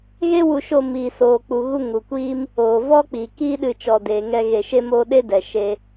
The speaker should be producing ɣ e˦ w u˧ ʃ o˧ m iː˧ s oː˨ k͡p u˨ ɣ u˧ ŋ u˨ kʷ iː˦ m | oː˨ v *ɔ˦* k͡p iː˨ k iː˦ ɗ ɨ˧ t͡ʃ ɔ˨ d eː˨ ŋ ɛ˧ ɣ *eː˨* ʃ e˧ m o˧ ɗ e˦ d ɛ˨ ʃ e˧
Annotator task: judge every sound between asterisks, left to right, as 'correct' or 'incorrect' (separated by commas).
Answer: correct, incorrect